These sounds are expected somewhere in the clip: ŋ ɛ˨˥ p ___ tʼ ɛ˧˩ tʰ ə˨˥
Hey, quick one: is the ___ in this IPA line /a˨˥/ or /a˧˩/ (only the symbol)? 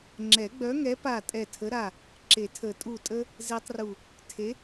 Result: a˧˩